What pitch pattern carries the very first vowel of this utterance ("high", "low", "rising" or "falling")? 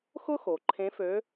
high